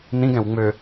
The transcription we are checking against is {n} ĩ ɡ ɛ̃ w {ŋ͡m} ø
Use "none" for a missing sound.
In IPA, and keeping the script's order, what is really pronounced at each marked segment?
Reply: n, ŋ͡m

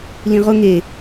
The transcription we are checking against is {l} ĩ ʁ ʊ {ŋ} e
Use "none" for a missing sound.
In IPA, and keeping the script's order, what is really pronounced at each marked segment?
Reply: l, ŋ

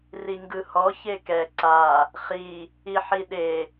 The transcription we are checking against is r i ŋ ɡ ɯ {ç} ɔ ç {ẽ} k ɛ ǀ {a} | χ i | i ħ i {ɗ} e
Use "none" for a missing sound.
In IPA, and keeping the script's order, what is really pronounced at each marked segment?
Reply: h, e, a, ɗ

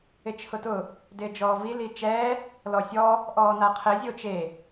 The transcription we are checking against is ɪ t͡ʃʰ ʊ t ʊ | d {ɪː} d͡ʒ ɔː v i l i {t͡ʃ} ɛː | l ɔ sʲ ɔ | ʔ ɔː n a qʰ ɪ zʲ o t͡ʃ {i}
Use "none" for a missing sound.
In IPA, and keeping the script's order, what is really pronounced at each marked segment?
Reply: ɪː, t͡ʃ, e

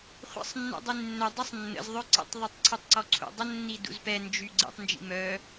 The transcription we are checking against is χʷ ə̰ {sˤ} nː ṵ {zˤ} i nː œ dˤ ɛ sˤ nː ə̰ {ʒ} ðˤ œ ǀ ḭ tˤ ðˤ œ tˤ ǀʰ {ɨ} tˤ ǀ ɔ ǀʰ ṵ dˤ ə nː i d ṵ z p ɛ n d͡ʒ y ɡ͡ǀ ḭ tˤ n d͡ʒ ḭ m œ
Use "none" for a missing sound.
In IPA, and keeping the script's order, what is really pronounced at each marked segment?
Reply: sˤ, dˤ, z, y

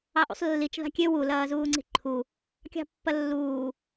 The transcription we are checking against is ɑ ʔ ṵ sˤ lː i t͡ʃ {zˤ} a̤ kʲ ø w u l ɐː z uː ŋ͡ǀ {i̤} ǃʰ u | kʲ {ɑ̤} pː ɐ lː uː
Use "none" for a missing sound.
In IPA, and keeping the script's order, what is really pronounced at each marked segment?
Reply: ð, i̤, ɑ̤

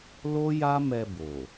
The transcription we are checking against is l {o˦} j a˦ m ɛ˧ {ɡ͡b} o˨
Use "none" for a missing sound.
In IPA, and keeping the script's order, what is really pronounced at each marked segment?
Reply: o˦, b

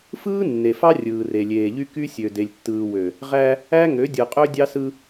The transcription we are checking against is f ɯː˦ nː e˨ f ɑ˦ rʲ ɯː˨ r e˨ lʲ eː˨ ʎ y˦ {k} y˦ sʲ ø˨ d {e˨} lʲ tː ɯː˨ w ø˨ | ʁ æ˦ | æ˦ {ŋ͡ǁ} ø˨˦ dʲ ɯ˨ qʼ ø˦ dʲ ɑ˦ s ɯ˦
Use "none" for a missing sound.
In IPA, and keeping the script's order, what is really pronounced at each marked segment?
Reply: k, e˨, ŋ

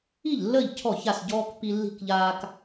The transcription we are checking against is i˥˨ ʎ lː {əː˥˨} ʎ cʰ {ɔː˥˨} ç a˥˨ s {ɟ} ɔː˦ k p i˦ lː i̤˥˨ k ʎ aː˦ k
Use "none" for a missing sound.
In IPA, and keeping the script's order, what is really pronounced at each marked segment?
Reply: əː˥˨, ɔ˥˨, ɟ

